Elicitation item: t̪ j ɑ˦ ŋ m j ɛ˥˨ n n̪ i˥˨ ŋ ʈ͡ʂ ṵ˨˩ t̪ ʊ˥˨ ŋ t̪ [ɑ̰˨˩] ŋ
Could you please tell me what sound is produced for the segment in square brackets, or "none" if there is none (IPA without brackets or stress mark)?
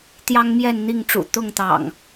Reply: ɑ̰˨˩